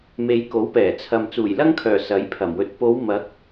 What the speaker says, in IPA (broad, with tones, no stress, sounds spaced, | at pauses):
m e˨˧ j k o˨˥ w p ɛː˨˩ t͡sʰ ɐ˨ m t͡s uː˨˩ j l ɐ˥ ŋ kʰ œː˨˩ s ɐ˨˥ j pʰ ɐ˨˩ m w ɵ˧ t̚ p o˨˧ w m ɐ˨˥ k̚